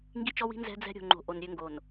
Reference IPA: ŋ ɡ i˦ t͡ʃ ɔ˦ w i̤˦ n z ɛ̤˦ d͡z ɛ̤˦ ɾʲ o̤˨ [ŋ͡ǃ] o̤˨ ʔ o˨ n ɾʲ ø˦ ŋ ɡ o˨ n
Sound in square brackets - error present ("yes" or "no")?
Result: no